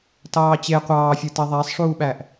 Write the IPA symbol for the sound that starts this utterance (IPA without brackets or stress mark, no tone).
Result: t